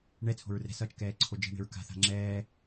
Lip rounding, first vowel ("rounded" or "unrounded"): unrounded